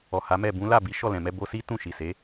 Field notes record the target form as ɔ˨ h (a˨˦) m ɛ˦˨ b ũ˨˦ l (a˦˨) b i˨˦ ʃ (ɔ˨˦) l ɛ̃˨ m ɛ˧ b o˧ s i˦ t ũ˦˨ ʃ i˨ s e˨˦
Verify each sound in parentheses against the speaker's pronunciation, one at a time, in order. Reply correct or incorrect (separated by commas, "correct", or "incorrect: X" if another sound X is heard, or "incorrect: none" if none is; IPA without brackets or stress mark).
correct, correct, incorrect: ɔ˦˨